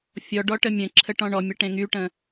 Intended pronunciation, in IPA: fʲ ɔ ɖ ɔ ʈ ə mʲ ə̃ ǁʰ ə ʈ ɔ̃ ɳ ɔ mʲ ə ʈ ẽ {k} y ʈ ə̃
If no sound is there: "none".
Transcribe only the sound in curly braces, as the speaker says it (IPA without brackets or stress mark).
ŋ